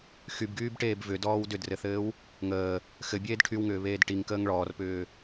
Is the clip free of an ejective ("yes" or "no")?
yes